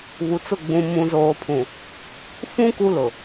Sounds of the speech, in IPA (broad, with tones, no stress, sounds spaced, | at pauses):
β u˨ t͡s ʊ˦˨ ɡ͡b ũ˨ m ũ˨ z oː˨ pʰ ũ˨ | f ũ˦ k u˦ l ʊ˨